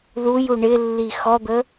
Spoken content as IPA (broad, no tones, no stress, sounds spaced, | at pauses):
ð u j u ɳ ɪ lː i x ɔ d̪ ə